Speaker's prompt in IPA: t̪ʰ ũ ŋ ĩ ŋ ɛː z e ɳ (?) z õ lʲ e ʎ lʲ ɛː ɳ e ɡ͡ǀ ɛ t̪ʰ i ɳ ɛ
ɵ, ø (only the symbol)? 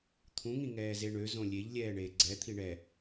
ø